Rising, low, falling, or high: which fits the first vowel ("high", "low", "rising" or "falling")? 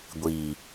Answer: low